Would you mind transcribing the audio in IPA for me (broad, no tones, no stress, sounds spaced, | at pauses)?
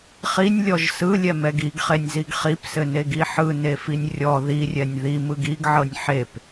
χ i nʲ lʲ ɔ ʒ s ɯ lʲ ɛ m ɛ ɡ i ɡ χ e nʲ z i ɡ χ i p s ɘ n e ɡ i ħ ɯ n e f i nʲ rʲ ɔ ð i rʲ ɛ nʲ ð i m ɯ ɡ i ɡ ʕ ɤ nʲ ħ e p